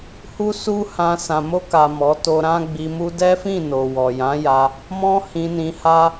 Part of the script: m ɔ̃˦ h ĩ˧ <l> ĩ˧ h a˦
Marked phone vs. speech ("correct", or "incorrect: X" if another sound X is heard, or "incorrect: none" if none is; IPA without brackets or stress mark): incorrect: n